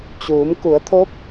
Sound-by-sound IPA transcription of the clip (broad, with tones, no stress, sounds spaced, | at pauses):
t͡ɕ uː˩˧ m k u˩˧ ə̯ t̪ʰ o˧˥ p̚